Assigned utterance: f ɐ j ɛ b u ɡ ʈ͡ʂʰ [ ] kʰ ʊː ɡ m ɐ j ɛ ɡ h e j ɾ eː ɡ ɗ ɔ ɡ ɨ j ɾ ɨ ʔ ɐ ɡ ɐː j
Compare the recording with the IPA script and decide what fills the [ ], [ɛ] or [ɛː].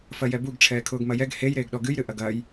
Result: ɛː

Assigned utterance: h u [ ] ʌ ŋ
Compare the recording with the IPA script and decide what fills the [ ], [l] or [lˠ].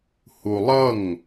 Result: lˠ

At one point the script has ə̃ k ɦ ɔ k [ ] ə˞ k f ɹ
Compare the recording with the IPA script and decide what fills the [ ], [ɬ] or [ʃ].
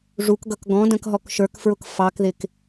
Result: ʃ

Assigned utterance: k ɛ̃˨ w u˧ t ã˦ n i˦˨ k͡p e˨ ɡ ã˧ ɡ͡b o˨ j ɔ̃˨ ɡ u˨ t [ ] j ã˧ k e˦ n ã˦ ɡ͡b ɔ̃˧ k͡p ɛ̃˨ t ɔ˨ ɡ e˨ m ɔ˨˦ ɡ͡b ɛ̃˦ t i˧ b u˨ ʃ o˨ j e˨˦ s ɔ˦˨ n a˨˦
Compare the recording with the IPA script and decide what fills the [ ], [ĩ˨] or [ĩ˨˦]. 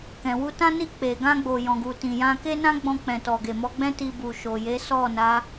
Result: ĩ˨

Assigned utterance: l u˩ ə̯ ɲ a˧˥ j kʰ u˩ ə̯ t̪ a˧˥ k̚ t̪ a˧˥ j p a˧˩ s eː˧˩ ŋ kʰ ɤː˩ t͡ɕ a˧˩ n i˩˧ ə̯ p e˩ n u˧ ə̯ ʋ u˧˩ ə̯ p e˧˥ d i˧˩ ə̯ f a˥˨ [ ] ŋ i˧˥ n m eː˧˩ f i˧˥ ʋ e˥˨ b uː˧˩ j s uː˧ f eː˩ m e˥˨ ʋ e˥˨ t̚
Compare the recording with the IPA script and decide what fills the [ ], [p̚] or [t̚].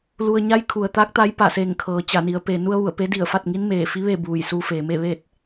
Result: t̚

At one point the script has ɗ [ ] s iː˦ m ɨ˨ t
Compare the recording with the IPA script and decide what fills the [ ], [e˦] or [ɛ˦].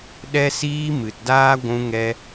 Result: ɛ˦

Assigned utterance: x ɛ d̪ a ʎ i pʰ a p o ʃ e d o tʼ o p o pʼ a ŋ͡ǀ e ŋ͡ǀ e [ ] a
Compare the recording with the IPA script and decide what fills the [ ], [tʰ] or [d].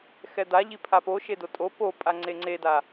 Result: d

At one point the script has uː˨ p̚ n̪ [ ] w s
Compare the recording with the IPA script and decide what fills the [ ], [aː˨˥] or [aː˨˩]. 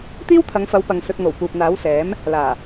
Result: aː˨˥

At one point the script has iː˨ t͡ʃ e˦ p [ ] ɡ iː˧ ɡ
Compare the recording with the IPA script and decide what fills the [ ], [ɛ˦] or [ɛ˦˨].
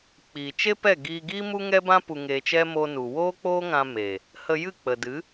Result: ɛ˦˨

